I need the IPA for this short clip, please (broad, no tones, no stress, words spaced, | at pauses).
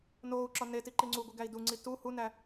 noːu̯ǁɒ neti ǃiŋ͡ǀuɡʷi ɡæi̯duŋ͡ǀi tu hunæ